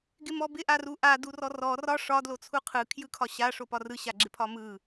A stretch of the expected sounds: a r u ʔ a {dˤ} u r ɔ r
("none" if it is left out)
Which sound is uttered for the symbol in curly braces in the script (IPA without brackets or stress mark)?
d